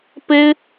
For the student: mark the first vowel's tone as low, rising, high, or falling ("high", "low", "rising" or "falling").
high